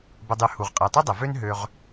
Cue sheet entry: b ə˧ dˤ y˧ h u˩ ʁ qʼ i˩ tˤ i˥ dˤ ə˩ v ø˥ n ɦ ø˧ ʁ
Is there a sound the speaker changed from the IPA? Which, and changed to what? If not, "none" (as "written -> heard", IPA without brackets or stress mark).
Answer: none